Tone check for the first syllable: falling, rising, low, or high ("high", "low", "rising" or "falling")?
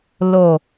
low